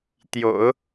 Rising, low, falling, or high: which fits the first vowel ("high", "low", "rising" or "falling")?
low